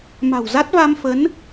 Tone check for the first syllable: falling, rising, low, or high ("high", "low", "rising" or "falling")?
low